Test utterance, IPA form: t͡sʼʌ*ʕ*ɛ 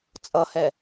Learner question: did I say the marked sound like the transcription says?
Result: no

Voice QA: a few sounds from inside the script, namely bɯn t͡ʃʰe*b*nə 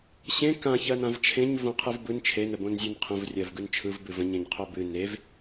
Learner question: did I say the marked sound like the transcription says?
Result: no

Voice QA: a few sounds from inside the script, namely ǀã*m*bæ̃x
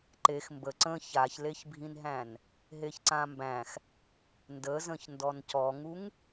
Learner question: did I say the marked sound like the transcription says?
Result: yes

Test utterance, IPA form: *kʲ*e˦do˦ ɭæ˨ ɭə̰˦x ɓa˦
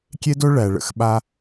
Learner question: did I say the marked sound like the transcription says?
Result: yes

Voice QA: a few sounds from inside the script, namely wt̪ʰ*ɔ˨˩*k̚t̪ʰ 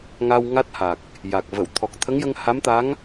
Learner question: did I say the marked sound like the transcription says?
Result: yes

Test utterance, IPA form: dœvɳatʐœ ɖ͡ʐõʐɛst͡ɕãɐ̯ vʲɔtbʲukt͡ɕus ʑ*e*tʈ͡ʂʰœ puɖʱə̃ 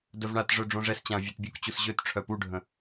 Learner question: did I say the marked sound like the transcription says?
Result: no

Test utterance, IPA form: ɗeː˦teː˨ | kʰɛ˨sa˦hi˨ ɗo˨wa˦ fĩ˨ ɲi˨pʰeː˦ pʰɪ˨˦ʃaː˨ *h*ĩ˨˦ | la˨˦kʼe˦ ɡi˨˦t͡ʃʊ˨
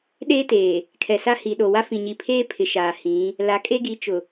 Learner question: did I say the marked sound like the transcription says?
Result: yes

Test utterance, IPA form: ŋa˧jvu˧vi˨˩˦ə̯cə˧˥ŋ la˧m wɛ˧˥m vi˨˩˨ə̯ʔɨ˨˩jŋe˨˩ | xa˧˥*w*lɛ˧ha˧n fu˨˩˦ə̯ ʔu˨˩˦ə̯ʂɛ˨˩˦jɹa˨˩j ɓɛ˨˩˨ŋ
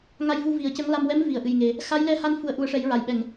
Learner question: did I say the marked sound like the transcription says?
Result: no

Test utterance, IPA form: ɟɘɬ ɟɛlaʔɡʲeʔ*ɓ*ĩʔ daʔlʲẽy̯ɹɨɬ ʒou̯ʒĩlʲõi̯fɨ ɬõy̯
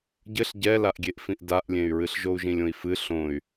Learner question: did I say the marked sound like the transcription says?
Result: no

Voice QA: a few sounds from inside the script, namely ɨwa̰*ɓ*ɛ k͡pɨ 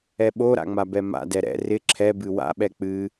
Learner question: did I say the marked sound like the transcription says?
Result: yes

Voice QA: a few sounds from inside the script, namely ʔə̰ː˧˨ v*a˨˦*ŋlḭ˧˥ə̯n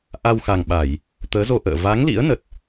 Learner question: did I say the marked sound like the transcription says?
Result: yes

